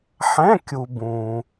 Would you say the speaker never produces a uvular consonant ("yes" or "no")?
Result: yes